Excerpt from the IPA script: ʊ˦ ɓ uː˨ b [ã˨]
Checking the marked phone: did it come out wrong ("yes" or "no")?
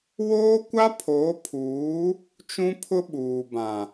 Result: no